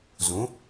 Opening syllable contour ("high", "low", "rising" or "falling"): rising